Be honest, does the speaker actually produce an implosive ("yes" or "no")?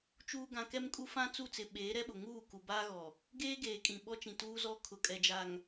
yes